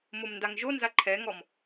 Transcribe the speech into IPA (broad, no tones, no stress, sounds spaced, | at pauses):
m o m n d a ŋ ʒ o n z a ǃʰ ɛ ŋ ɔ m